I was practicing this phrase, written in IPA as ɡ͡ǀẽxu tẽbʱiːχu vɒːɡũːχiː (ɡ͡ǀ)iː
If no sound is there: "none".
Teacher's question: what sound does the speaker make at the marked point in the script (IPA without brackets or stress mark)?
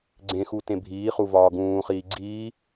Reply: ɡ͡ǀ